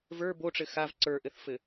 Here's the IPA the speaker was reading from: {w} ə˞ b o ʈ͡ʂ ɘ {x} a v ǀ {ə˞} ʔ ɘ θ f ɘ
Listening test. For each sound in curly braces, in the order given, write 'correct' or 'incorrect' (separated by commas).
incorrect, correct, correct